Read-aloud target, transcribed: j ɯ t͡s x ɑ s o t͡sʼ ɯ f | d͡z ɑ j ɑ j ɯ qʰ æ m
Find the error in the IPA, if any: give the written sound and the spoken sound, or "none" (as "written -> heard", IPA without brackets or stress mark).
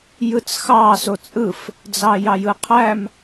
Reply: none